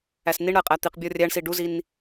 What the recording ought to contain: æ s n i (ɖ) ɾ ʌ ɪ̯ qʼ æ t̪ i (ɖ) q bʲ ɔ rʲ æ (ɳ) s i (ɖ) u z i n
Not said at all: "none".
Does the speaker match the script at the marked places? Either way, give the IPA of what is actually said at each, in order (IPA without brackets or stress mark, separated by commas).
ɳ, none, ɳ, ɖ